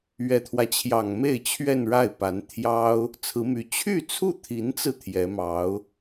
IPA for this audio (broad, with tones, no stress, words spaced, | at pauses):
ɥɛ˨˩t̪ʰwä˦t͡ɕʰjɑ˨˩ŋ me˥˧ɪ̯t͡ɕʰɥɛ˥˧nɻa˥˩ɪ̯pa˧˥n t̪ʰjɑ˥ʊ̯ | t͡sʰɹ̩˧˥my˧˥ t͡ɕʰy˥˧t͡sʰu˥˩t̪ʰi˧˥nt͡sɹ̩˧ t̪ʰjɛ˧˥mɑ˧˥ʊ̯